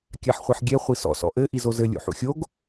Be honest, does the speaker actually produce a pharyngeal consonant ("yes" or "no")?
yes